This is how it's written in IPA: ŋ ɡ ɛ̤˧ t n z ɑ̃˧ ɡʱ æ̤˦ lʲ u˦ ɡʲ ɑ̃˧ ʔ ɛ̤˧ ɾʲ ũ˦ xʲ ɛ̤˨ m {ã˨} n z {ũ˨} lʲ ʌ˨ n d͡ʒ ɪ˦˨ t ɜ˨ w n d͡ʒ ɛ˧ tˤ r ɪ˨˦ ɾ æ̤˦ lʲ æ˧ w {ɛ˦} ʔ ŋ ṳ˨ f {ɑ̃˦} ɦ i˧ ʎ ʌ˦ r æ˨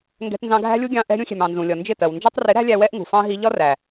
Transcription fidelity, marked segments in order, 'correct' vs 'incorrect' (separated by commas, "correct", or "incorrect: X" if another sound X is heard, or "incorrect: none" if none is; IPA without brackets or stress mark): incorrect: ɑ̃˨, correct, correct, correct